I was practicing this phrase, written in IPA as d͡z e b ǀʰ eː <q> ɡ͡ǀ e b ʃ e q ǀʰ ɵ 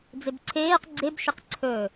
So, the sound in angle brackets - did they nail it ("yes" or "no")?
yes